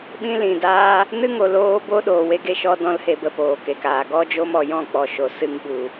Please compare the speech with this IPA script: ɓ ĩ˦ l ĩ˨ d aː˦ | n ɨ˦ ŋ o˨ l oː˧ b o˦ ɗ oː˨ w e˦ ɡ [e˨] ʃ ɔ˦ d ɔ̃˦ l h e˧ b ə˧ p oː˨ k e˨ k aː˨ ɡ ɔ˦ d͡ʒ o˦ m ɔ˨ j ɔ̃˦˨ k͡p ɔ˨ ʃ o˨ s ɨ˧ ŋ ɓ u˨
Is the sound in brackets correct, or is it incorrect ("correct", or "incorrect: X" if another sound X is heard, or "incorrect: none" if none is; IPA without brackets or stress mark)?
incorrect: e˦